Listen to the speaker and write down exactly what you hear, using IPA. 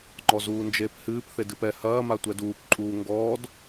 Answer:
ŋ͡ǃ ɔ z uː n d͡ʒ eː p h ɨː p θ e d ɨ p ɛ h ɐː m a tʷ ɛ d uː p ǃʼ uː ŋ ɡ ɔː d

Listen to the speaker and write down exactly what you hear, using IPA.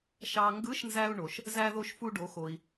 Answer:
ʃ ɑ˧ ŋ ɡ ɯ˧˥ ʃ n z æ˧ u̯ ɳ o˩ ʃ | z æ˧ ð o˧ ʃ f u˧ ɖ o˩˧ x o˩ i̯

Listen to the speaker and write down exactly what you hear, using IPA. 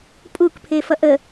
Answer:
pʼ u k pʰ e f ʌ ʔ ə

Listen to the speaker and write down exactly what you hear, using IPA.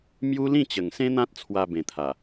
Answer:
m j u˦ l ĩ˥˧ t͡ɕ ə˨˩ ŋ s ẽ˦ n̪ ã˦ t̚ t͡sʰ w a˧ b ẽ˨˩ t̪ʰ a˨˩

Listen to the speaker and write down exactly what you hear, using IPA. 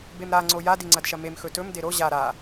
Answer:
b e m ɾ a ŋ͡ǀ o j a d i ŋ͡ǀ ɐ d ʃ ɐ m e m x ɵ t ɵ m d e ɾ o ʑ a ɾ a

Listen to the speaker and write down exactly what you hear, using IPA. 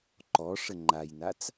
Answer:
ǃ ɔ ʂ ə ŋ͡ǃ a j n a t͡s

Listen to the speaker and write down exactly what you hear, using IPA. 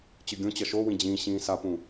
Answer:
t͡ɕ ɯ ɡʲ õ t͡ɕ ʌ ʃ o w ĩ d͡ʑ ĩː ɕ ĩː s a p ũ

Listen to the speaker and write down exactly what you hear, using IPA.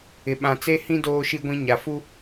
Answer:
ɪ˨ ɓ ã˨ t͡s e˦ h ĩ˦ d oː˦ ʃ i˦ ɡʷ ĩ˦ ɲ a˨ f u˦

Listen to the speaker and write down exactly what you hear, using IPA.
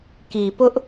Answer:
k i˨ p ʊ˦ ʔ

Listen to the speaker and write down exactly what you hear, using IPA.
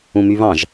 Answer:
ũ m y β ɑ̃ ʒ

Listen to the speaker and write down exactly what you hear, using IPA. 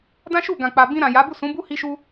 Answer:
d ã˦ ʃ u˦˨ ɡ ã˨ k͡p a˨ b ĩ˧ ɾ ã˨ j a˨˦ b u˦˨ s ũ˨˦ b u˦ h i˦ ʃ u˦

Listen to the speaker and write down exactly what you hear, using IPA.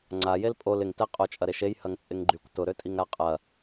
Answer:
ŋ͡ǀ a j e l pʼ o l ɪ ŋ t ɛ qʼ o t͡ʃʼ ɐ ɾ e ʃ e j h ɐ ŋ t͡sʼ ɪ ŋ ɡ͡ǃ y kʷ t ʊ ɾ ø tʼ i ŋ ɾ a qʼ ɐ

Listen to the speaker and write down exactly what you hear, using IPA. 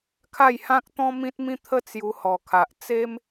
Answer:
kʰ a˥˧ j h ã˦ k̚ t̪ ɔ̃˦ m ĩ˦ t̚ m ĩ˥˧ t̪ʰ ə˥˧ t͡s j u˧ h ɔ˨˩ kʰ a˨ ʔ t͡s e˦ m

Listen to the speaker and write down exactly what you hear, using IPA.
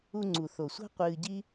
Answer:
u˧ ŋ͡ǀ u˨ θ o˨ sʷ a̤˦ qʷ ɨː˧ ɟ i˦

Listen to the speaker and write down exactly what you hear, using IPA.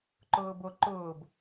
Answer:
ǃ ʊː b o ǃ ʊː b

